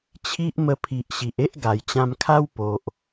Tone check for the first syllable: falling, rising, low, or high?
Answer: high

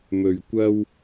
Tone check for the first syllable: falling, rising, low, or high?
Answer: low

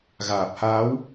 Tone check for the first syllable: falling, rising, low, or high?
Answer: low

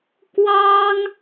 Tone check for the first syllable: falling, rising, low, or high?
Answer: high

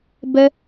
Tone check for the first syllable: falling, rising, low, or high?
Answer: high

